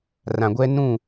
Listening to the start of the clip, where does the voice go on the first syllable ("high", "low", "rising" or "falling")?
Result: low